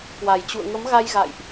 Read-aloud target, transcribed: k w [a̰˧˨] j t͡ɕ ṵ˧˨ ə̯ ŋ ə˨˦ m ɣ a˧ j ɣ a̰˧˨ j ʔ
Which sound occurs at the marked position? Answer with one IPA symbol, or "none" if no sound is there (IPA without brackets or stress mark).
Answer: a˨˩